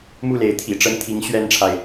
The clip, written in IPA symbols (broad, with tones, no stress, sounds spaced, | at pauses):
m u˥˩ l e˧˥ ɪ̯ t̪ʰ ḭ˨˩ ʈ͡ʂ ə˧˥ n t̪ʰ i˧˥ ŋ ɕ ɥ ɛ˥ n ʈ͡ʂʰ a˨ ɪ̯